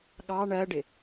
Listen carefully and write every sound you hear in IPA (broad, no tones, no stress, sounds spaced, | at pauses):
ɠ ɑ ɳ ɜ ɖ ɪ